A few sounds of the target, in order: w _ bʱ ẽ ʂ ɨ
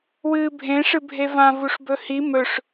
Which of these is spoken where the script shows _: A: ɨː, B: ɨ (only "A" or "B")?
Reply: A